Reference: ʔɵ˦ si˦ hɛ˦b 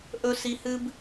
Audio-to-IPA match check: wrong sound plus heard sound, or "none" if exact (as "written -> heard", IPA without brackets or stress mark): ɛ˦ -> ɨ˦